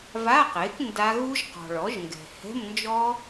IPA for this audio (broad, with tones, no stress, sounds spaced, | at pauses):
v a˧˥˧ q e˩˥ k n d a˦˥ ɣ u˦˥ ʒ q ɔ̤˨ ɭ ɔ˩˥ ʒ ŋ ɡ ɛ̤˨ h ɛ̤˧˥˧ m n d͡ʒ ɔ˦˥